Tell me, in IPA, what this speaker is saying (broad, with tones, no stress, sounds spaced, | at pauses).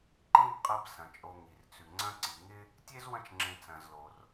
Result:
ǃ ĩ˥ b qʼ ɐ˦ b s ɐ̃˩ t͡ʃʼ o˨ ŋ i˩ r t͡s ʉ˩ ŋ͡ǀ ɐ̃˦ ǀ i˩ ŋ ɪ˥ | tʲ e˥ z w ɐ̃˦ t͡ʃ ŋ͡ǁ ẽ˨ t͡s ɐ̃˩ z l o˩ r